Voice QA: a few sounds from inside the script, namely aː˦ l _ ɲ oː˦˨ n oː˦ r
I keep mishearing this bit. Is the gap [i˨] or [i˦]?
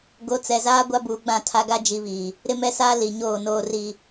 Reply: i˨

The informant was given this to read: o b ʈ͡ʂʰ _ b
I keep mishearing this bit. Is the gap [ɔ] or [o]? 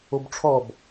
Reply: ɔ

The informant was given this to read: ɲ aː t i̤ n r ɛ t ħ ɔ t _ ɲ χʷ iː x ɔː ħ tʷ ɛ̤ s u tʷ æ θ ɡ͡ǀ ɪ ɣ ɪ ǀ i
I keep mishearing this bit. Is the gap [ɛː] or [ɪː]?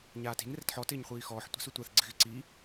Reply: ɪː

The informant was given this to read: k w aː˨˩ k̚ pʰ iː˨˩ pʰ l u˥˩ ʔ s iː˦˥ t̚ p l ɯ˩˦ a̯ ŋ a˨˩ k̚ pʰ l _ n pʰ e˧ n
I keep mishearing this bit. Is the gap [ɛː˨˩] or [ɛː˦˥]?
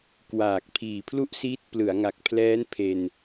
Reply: ɛː˦˥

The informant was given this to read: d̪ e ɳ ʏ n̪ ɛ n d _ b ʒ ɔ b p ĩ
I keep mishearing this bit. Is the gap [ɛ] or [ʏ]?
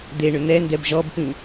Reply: ɛ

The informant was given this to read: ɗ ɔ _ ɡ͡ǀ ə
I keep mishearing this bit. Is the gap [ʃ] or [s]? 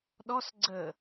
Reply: s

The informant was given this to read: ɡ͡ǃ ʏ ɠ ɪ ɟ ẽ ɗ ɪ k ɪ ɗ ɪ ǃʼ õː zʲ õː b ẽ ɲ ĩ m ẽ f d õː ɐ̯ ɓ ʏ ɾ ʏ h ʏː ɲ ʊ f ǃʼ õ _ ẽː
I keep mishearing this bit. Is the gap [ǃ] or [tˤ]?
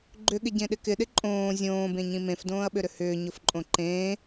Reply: ǃ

